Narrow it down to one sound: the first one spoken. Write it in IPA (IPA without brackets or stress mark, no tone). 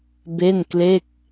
b